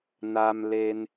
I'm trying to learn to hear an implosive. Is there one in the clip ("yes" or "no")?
no